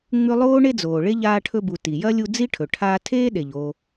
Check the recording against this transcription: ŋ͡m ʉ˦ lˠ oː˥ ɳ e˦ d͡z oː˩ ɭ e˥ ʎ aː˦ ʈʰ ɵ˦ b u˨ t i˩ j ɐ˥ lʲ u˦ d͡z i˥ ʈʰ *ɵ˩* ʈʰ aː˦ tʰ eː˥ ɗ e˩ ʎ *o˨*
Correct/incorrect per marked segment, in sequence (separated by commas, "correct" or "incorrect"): correct, correct